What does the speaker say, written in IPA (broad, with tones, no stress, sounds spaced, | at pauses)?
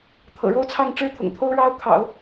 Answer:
t̪ʰ ɤ̰˨˩ ɻ o˥ ʊ̯ t͡sʰ ɑ˥˩ ŋ ʈ͡ʂ ɻ̩˥ t̪ʰ ʊ̰˨˩ ŋ t̪ʰ o˥ ʊ̯ ɻ ɑ˥ ʊ̯ kʰ ɑ̰˨˩˦ ʊ̯